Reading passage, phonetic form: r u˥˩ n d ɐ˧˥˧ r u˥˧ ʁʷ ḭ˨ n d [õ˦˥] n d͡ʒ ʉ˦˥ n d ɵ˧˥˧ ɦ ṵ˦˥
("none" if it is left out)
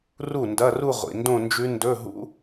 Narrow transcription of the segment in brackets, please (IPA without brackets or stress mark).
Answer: õ˥˧